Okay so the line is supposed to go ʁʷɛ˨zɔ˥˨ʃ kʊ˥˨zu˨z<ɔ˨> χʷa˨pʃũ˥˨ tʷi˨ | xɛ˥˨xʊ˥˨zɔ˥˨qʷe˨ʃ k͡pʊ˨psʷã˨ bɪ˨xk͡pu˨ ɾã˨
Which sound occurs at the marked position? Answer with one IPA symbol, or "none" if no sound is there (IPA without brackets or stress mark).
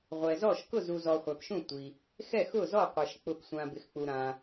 ɔ˨